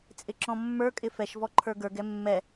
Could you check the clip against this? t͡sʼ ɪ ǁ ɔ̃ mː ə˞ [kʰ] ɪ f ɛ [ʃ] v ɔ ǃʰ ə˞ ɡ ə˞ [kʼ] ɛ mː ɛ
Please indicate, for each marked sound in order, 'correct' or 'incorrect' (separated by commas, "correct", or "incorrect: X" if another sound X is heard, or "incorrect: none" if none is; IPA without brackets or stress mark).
incorrect: kʼ, correct, incorrect: ɡ